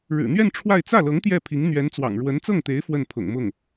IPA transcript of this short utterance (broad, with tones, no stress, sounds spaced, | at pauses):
ɻ ɻ̩˨˩ n̪ ɥ ɛ˥˧ n ʈ͡ʂʰ w a˥˧ ɪ̯ t͡s ä˥˩ l ɤ˧˥ ŋ t̪ j ɛ˥˩ pʰ i˧˥ ŋ n̪ ɥ ɛ˧˥ n t͡s w ɑ̰˨˩ ŋ ɻ w ə˧˥ n t͡s ɤ˥˩ ŋ t̪ e˧˥ ɪ̯ f w ə˥˩ n pʰ ʊ̰˨˩ ŋ m ʊ˥˩ ŋ